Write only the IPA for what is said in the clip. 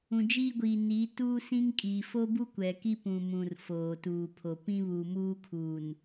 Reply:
ũ˨ d͡ʒ iː˦ ɡʷ iː˨ n iː˨˦ t uː˦ s ĩ˦ ŋ kʼ iː˨ f o˦ b u˦ kʷ ɛ˨ k i˦ p ũ˨ m ũ˨ r f oː˨ t uː˨ pʰ o˨ p ĩ˦ β uː˨ m uː˦ kʰ uː˨ n

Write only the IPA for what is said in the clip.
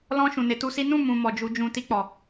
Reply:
l ɔ̃˧ ʃ ũ˨ n e˨˦ t u˧ s i˦ n ũ˦˨ m ũ˨ m ɔ˨ d͡ʒ u˧ d͡ʒ ũ˧ t i˧ k͡p ɔ˨

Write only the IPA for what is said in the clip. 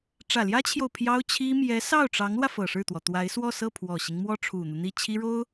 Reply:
ʈ͡ʂ ä˨˩ l j ä˥ t͡ɕʰ j o˨ ʊ̯ pʰ j ɑ˥ ʊ̯ t͡ɕʰ i˥ m j ɛ˧˥ s ɑ˥˩ ʊ̯ ʈ͡ʂ ɑ˧˥ ŋ l w ä˧ f ɤ˨˩ ʂ ɻ̩˥˩ t̪ w ɔ˩ t̪ w a˧˥ ɪ̯ s w ɔ˥˧ s ɤ˥˩ pʰ w ɔ˨˩ ɕ i˦ ŋ m w ɔ˥ ʈ͡ʂʰ u˨˩ n̪ u˦ n̪ i˥˩ t͡ɕʰ i˥ ɻ o˥ ʊ̯

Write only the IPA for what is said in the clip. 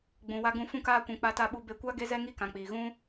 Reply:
ɡ͡b ũ˨ w a˧ ɡ ũ˧ f ũ˧ k aː˧ kʷ ũ˨ k͡p a˧ t a˧ ɓ u˧ b e˧ kʷ a˦ ɡ e˦ z ɛ˦ ŋ i˦ k ã˨ k͡p iː˨ ɣ ũ˦

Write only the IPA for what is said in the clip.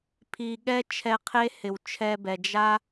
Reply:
pʰ i˨ ɠ ɛ˦ t͡ʃʰ ɛ˧ qʰ e˦ h ɪ˨ w t͡ʃʰ ɛ˧ b ɛ˨ d͡ʒ a˦

